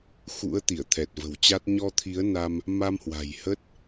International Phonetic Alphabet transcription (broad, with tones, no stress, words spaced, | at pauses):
xṵ˧˥ə̯ t̪i˧˩ə̯t̪ʰɛ˨˩t̚və̤˨˩wt͡ɕa˦˥t̚ ɲɔ˧t̪ʰi˨˦ə̯na˧m | ma˧mhwa̤˨˩jhə˦˥t̚